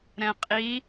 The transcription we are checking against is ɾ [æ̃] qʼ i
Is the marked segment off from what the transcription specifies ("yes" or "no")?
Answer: yes